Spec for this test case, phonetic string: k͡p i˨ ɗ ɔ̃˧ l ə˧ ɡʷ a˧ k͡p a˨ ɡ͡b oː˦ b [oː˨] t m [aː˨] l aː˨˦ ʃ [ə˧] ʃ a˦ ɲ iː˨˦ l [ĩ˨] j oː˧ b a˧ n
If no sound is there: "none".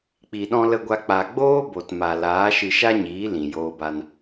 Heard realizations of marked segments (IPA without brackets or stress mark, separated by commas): o˨, a˨, ɨ˧, ĩ˨